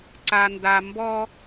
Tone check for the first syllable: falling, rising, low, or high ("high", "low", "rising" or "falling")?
low